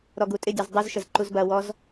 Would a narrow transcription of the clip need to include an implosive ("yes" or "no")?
no